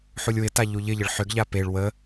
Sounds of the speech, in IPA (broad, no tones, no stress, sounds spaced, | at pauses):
ħ u lʲ w ɪ t a ʎ u ʎ ɪ ʎ ə ɭ ħ ʏ ɡ ʎ a p e ɭ w ə